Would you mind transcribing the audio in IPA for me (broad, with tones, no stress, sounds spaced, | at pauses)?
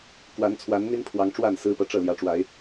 k w a˨˦ n t͡sʰ w a˨˦ n n̪ i˦ n pʰ w ɑ˨˦ ŋ ʈ͡ʂ w a˥˨ n s ɹ̩˦ p ɤ˨ ʈ͡ʂ ɤ˥˨ l j ä˨˦ ʈ͡ʂ w a˨˦ ɪ̯